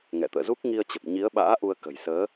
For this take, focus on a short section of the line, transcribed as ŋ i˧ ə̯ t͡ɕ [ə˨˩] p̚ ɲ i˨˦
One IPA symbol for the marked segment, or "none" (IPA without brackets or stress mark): ə˨˩